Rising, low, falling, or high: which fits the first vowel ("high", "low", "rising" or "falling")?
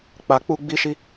low